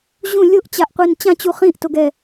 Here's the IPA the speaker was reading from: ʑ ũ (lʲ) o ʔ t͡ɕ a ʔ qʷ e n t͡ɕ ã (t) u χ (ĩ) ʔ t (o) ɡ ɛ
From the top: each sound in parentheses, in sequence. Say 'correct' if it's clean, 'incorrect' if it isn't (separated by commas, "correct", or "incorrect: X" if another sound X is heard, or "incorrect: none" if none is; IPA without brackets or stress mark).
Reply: correct, incorrect: t͡ɕ, correct, correct